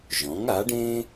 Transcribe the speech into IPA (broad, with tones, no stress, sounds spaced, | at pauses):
ʒ ɔ̃˩˥ ŋ a˩˥ ɖ ẽ˥